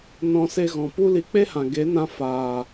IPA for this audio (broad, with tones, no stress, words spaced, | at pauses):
nɔ̃˦se˦ ɣɔ̃˨pu˦li˧ k͡pe˦hã˨ ɡe˨˦nã˧ faː˨